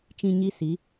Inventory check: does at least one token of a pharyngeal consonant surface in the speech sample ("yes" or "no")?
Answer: no